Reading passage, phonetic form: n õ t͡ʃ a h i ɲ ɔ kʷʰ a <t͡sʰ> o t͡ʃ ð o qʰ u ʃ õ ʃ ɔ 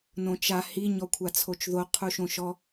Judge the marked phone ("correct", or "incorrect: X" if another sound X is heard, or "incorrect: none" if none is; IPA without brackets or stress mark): correct